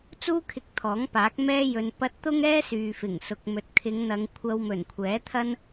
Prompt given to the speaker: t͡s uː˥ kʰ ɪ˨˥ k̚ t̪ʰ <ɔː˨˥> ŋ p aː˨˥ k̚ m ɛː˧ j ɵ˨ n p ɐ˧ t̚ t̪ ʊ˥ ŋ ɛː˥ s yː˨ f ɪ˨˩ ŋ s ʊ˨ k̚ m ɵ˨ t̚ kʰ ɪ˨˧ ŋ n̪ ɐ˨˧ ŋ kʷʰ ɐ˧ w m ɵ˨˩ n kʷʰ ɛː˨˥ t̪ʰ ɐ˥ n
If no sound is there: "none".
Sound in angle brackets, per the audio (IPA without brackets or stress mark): ɔː˨˥